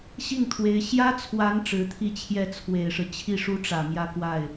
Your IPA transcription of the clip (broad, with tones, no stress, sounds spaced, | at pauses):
ɕ i˥˩ ŋ t̪ʰ w e˧˥ ɪ̯ ɕ j ä˥ t͡sʰ w a˧˥ n ʈ͡ʂ ɻ̩˧˥ t̪ʰ i˥˧ t͡ɕʰ j ɛ˥˩ t͡sʰ w e˨˩ ɪ̯ ʂ ɻ̩˦ t͡ɕʰ i˥˩ ʂ u˥ ʈ͡ʂ ä˨˩ m j ä˥ k w a˥˩ ɪ̯